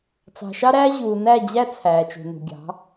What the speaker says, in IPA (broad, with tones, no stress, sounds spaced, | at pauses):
t͡s ɑ̤˨ ʃ ɑ˦ ɾ æː˦ ʑ uː˨ n æ˦˨ d͡ʑ æ˦ t͡sʰ æː˨ t͡ʃ ṳ˨ n ṳ˨ ɡʲ ɑ̤˨˦